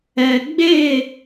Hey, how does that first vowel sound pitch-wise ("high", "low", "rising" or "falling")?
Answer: low